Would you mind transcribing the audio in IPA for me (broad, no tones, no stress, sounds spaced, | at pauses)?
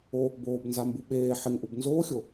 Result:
o | b oː b n z a m b u ɓ eː ħ ɪ ŋ ʔ u b n z oː xʲ o